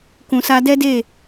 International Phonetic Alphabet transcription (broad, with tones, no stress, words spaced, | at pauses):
kũ˨sa˧dɛ˦de˦˨